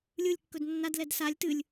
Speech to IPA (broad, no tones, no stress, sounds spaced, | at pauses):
lʲ ɯ lʲ kː ɵ d nː a d l ɛ d s a lʲ t ɨ lʲ